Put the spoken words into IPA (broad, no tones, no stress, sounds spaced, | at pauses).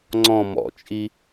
ŋ͡ǀ ɔ̃ m ɔ̰ t͡ʃʼ i